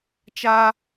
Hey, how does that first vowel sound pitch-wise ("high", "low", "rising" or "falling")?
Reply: high